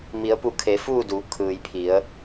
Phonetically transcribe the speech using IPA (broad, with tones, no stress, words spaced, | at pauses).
mi˩˧ə̯pu˧˩kʰe˩˧ fuː˥˨duː˩˧kʰɯː˩jpʰi˩˧ə̯